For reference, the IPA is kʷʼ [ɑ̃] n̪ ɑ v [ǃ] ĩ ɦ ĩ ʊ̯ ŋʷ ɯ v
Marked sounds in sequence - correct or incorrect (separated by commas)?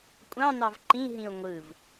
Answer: correct, correct